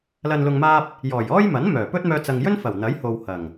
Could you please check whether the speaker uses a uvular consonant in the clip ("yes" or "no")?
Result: no